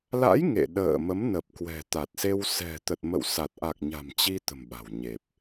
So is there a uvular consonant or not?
no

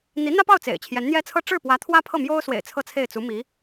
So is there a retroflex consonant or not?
yes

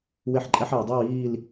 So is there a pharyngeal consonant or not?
yes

